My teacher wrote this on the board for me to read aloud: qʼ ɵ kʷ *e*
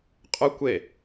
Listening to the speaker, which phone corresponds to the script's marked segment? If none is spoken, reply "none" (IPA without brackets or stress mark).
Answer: e